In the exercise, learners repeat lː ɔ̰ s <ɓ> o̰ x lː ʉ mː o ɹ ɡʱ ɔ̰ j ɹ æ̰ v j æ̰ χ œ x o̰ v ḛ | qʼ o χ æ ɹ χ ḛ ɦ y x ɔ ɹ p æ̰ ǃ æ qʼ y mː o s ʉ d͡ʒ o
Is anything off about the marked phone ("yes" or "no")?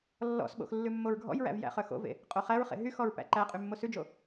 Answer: no